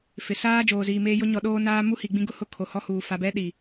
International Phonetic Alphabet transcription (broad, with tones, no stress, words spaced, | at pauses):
fɪ˨ saː˦ d͡ʒoː˨ziː˨meː˦jʊ˦ ɲɔ˨ɗoː˦ naː˦mu˦hi˨ɡ͡bĩ˦ ɡʊ˦hʊ˦˨ kʰo˨hɔ˦huː˨ fa˨bɛ˦ɗi˨